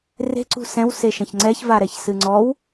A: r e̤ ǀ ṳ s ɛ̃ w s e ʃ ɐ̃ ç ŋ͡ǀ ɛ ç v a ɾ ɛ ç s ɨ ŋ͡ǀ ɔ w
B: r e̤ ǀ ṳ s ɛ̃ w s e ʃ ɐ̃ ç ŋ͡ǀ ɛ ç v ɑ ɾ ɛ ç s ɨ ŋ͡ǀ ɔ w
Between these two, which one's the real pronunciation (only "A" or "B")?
A